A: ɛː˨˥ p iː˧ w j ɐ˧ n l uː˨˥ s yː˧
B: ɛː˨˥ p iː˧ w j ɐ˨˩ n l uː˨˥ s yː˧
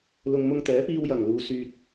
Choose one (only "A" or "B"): B